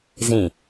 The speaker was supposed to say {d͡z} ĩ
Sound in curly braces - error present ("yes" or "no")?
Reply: yes